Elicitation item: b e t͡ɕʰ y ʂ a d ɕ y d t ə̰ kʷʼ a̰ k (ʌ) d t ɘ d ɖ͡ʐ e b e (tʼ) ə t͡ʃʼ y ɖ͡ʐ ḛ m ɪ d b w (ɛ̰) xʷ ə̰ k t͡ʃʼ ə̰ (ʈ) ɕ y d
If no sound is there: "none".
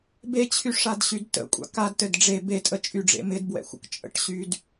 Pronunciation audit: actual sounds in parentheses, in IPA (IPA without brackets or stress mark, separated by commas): a, tʼ, ɛ̰, ʈ